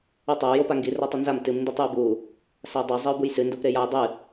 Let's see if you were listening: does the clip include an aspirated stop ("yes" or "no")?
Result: no